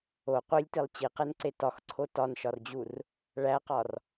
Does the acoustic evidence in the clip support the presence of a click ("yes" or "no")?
yes